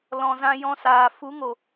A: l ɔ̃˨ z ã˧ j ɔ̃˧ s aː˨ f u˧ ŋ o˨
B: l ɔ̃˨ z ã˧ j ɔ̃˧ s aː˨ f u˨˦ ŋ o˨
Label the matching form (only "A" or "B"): B